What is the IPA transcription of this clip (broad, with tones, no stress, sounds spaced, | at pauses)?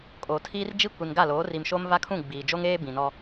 kʼ oː˨ tʰ iː˦ r d͡ʒ i˦ kʷ i˨ n ɡ a˦˨ l oː˨˦ r i˨ m ʃ o˦ m v a˦ kʰ ũ˦˨ ɡ͡b iː˨ d͡ʒ o˦ ŋ eː˦ b ĩ˨ n ɔ˦